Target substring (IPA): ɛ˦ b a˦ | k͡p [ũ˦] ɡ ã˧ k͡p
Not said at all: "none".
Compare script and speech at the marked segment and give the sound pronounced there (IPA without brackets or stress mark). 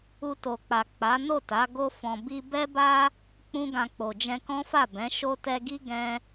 ũ˦